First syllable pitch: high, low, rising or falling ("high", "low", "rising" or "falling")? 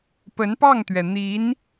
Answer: rising